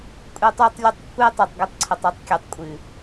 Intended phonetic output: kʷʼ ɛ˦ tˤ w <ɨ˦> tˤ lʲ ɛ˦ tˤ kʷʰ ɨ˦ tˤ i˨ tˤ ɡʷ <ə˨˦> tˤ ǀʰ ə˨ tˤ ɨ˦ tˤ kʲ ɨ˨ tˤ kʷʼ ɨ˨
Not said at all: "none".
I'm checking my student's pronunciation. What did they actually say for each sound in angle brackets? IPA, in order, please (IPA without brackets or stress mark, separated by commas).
ə˦, ə˦